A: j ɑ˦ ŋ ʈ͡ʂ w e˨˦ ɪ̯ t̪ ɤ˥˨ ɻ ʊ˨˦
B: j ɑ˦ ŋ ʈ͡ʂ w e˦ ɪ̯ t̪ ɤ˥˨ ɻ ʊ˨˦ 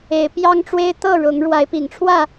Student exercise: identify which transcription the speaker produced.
B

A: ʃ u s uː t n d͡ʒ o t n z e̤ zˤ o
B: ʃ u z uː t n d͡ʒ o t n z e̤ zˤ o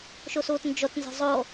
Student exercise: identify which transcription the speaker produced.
A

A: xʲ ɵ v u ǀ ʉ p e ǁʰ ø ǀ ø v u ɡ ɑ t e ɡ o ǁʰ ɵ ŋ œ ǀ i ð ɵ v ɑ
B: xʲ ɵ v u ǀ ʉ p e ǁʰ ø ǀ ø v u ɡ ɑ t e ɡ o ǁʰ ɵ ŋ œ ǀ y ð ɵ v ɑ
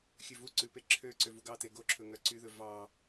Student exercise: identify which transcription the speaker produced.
B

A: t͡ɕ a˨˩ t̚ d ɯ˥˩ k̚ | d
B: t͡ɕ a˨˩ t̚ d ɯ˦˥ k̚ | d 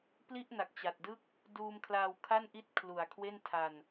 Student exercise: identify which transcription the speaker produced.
A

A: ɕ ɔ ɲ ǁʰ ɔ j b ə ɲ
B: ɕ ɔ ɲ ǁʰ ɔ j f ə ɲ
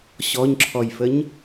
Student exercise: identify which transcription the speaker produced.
B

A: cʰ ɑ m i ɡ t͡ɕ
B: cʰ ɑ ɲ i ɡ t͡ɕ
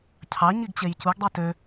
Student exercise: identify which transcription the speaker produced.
B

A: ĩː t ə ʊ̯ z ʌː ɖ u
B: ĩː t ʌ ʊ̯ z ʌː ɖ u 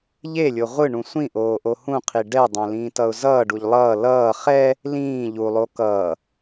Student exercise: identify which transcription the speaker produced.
B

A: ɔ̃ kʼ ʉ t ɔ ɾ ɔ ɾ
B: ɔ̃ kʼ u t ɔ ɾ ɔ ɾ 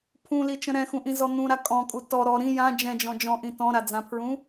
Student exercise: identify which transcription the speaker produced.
B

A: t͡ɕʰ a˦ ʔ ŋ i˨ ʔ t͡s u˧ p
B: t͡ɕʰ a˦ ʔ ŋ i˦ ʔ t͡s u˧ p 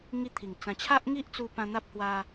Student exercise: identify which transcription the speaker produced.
B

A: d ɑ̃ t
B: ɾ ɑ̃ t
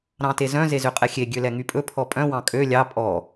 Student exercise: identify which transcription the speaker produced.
B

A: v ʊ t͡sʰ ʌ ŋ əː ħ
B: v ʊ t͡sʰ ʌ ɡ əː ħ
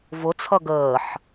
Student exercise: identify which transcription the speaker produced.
B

